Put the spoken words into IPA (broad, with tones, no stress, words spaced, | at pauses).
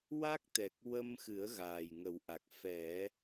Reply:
wa˦˥k̚t̪ɛ˨˩k̚ wə˧mxɨ˨˩˦ə̯ ɣaː˨˩jŋə˨˩˦wʔa˨˩k̚ fɛ˨˩˦